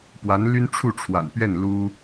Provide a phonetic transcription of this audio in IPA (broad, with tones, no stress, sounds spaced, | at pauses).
p w a˧˥ n l y˥ n ʈ͡ʂʰ u˥˩ ʈ͡ʂʰ w a̰˨˩ n p ɥ ɛ˥˩ n l u˥